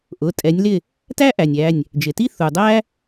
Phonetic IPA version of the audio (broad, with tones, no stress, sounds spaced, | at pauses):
ʔ ʊ˩˧˩ tʼ ɛ˨˦ nʲ l ɪ˥˨ | t æ˥ ʔ æ˩ nʲ æ˩˧˩ nʲ | d͡ʒ ɪ˩ t i˥ θ u˩ dˤ æ˥